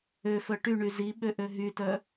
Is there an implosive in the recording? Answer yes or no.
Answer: yes